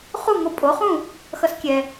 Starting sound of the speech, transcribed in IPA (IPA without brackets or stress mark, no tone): χ